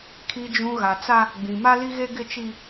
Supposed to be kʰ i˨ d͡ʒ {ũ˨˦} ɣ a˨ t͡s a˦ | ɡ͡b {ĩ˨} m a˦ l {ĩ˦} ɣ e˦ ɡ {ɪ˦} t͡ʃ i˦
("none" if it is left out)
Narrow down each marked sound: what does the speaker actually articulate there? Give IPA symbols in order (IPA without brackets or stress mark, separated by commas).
ũ˨, ĩ˨, i˦, ɪ˦